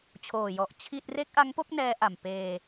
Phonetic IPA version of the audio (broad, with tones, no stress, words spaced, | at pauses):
t͡ɕʰoː˨˩jɔ˨˩ʔ t͡ɕʰi˥˩t̚ re˦˥k̚ʔa˦˥ŋpo˥˩k̚ nɛː˦˥ʔa˨˩m peː˧